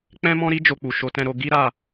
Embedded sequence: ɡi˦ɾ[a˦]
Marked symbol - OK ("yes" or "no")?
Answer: no